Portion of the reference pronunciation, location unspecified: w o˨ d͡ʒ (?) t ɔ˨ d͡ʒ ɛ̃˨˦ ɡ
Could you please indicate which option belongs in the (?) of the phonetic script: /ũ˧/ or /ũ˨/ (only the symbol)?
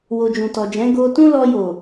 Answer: ũ˨